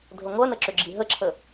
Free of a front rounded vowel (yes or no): no